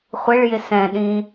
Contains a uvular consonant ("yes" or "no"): yes